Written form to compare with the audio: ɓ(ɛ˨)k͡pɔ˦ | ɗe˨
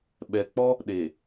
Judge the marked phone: correct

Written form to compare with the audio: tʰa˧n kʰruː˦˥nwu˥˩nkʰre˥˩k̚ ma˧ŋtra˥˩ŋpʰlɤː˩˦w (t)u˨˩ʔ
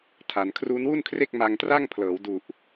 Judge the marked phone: incorrect: d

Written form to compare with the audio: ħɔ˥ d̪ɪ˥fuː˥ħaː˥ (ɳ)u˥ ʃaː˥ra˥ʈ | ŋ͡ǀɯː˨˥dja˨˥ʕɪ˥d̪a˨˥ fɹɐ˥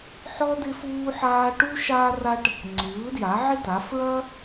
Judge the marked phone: incorrect: ʈ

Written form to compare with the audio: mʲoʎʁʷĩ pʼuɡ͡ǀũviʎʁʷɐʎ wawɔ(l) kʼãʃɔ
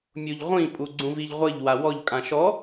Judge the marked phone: incorrect: ʎ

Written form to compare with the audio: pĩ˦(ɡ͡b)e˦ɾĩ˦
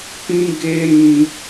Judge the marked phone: incorrect: ɡ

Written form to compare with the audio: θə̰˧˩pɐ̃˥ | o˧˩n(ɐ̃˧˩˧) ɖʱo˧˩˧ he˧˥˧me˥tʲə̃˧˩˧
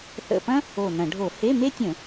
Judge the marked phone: correct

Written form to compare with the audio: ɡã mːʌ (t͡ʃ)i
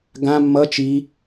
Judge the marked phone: correct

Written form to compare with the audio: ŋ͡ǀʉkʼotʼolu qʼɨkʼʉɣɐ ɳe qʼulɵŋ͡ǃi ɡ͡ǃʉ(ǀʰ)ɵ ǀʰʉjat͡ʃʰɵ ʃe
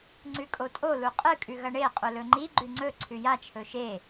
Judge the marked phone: incorrect: ŋ͡ǀ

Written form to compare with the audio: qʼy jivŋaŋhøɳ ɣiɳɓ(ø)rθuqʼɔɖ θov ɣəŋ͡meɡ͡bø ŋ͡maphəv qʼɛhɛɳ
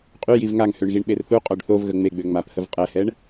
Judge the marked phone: incorrect: e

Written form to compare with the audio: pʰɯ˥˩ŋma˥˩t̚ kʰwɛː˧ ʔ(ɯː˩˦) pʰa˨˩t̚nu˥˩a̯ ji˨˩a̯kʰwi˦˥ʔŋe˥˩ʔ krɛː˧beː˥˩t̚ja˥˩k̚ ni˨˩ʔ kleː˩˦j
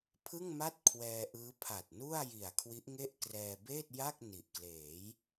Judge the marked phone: incorrect: ɯː˦˥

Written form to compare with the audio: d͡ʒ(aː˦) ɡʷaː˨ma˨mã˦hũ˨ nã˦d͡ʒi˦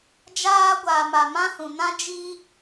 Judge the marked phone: correct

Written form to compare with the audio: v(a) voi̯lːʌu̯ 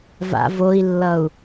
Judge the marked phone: incorrect: a̰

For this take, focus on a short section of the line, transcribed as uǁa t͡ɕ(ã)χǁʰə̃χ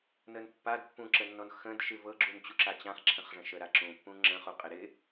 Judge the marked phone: correct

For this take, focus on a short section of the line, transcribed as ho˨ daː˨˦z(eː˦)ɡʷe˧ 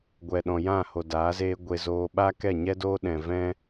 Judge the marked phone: correct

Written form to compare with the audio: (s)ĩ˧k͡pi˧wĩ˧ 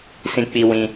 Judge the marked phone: correct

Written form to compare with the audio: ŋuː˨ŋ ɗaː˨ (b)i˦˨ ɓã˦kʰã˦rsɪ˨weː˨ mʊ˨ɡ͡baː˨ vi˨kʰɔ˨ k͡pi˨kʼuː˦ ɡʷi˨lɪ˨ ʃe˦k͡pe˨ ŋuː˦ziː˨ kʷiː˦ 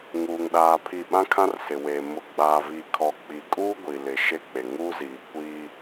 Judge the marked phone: incorrect: pʰ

